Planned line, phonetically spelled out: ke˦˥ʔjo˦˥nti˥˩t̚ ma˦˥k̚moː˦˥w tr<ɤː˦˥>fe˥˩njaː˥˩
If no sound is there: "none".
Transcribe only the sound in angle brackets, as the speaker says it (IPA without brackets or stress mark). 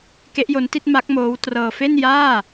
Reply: ɤː˧